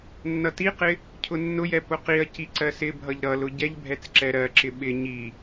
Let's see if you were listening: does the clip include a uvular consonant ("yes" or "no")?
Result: yes